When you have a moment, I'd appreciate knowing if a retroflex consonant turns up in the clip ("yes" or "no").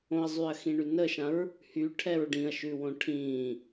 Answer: yes